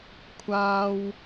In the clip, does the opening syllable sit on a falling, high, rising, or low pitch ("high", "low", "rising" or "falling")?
high